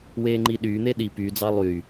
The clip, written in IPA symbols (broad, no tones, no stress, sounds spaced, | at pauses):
w eː ŋ͡ǃ i ɗ yː n̪ e ɗ i p y d͡z ɑ lˠ y